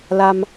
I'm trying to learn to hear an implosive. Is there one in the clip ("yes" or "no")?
no